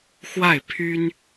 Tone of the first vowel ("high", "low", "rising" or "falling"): falling